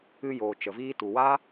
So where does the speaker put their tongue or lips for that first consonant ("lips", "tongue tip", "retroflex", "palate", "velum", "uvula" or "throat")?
palate